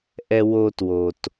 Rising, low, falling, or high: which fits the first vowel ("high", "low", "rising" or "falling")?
high